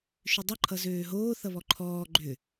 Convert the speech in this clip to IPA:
ʃ ʏ dˤ ʌ ǃʰ ʌ z øː ɦ oː θ ʌ β ɔ ǃʰ ɔː ɡ͡ǃ ʏ

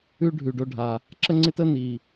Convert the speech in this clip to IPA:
ʉ˥ ɖʱ ʉ˩ ɖ o˧ ɖʱ a˩ | ǁ ə˥ ŋ͡ǀ ɪ˥ t ə˥ n i˩

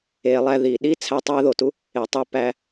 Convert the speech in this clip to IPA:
e˨ lˠ æ˦ ð i˩ ɗ i˥ t͡sʰ æ˦ tˤ æ˥ ð o˩ t u˥ | e˩ tˤ e˦ p æ˨

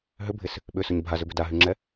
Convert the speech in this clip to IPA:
ɦ ʏ bʱ ɪ s | ɓ ʏ s ʊ ɲ bʱ a z ʏ b ʏ d a ɦ y ŋ͡ǁ ɛ

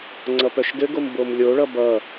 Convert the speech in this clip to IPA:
ŋ͡ǀ ʌ p œ ʃ d ɘ ɡ o m b o m lʲ o ɭ ʌ b ʌ

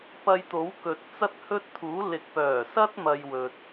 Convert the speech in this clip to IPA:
p ɐ˧ j t̪ o˨˥ w k ɵ˨ t̚ t͡s ɐ˥ t̚ h ɵ˥ t̚ t̪ʰ uː˨˥ l ɪ˨ k̚ p œː˨˩ s ɐ˥ t̚ m ɐ˧ j w ɵ˨ t̚

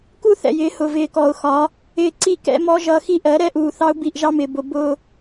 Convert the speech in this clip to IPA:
k u˦ θ ɛ̰˨ j ɪː˨˦ h ʊ˨ v ɪː˨ k ɔ˨ ʊ̯ x ɒ˨˦ | ɪː˦ ǀ i˦˨ k ɛ̰˦ m ɔ˦ ʒ ʌ˦ x i˦ ʔ ɜ˨˦ ɾ ɛ˦ ʔ uː˨ θ ɑ˦ ʊ̯ b i˦˨ ʔ ʒ ɑ˦ m ɪː˨ b ʊ˨ b ʊː˦

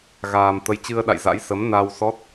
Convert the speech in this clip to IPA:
ɣ aː˨˩ m t̪ ə˨˦ j t͡ɕ ɨ˧ ə̯ ɗ a̰˧˨ j z a̰˧˥ j s ə˨˦ m n a˧ w s ɔ˦˥ t̚

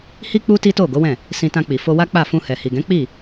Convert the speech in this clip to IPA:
h i˦ k͡p u˦ t i˦ t o˦˨ ɡ o˨˦ w ɛ̃˦˨ | s ĩ˧ t ã˧ k͡p i˨ f o˧ w a˦ k͡p a˦˨ f ũ˧ h ɛ˨ h i˨ ɡ ɛ̃˨˦ k͡p i˦˨

